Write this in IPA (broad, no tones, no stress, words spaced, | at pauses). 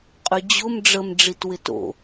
qʼyd͡ʑʊm ɖ͡ʐəm ɖ͡ʐitwɪto̰